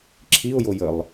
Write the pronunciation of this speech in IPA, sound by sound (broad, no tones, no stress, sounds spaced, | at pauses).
ǁʰ i ʊ̯ j o j ə lˠ